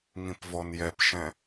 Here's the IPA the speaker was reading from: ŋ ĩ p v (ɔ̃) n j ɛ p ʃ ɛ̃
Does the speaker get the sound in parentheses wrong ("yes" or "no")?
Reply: yes